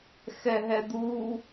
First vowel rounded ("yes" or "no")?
no